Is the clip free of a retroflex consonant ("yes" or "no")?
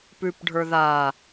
no